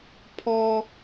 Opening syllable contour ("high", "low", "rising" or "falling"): high